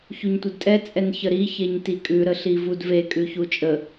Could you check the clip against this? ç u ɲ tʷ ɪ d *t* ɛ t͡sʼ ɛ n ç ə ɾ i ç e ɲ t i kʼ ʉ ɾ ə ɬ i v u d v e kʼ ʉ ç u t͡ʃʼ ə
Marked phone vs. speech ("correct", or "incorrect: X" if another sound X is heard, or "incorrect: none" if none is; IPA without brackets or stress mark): incorrect: tʼ